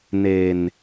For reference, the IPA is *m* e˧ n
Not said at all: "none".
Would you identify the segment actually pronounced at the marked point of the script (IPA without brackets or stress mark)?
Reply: n